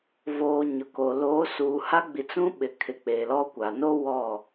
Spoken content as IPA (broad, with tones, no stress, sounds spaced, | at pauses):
v oː˨ ɲ ʊ˨ k o˨ l oː˨˦ s uː˨ h a˦ ɡ͡b i˨ t͡s ũ˦ ɓ ɪ˨ kʰ ɪ˨ k͡p e˨ l ɔ˦ kʷ a˨ n o˦ w ɔ˦˨